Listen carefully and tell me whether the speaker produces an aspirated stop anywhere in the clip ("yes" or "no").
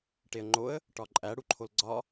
yes